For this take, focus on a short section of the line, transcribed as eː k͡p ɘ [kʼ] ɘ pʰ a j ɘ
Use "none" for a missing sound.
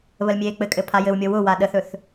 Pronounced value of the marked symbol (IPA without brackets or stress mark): kʼ